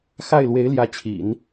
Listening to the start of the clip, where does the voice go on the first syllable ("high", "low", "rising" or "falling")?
falling